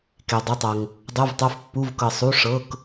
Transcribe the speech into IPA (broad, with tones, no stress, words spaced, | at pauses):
ke˩dˤu˩˧˩tˤɤ˩ŋ | dˤu˩˧˩vtˤo˩˧˩f pːu˩˧˩vkɤ˩ sˤu˩˧˩ ʂɤ˩˧˩k